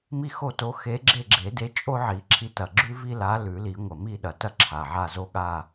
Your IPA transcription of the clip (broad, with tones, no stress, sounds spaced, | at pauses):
m i˥˧ x o˥˧ t o˧˥ x e˧˥ ɡ͡ǁ e˥˧ ɡ͡ǁ e˨˩˦ d e˧˥ t͡ʃʼ o˥ ʕ i˨˩˦ ǁʰ i˧˥ t ɐ˨˩ ɡ͡ǁ ʉ˥ v i˥ l a˧˥ l ʉ˨˩˦ l i˨˩˦ ŋʷ ɐ˨˩ m i˥˧ ɗ ɐ˨˩ t ɐ˥ ǁʰ a˨˩ ʕ a˥˧ z o˥ ɠ a˥˧